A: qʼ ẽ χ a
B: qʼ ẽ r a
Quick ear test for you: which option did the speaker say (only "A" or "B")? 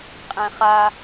A